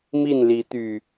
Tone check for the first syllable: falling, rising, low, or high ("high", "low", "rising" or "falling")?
falling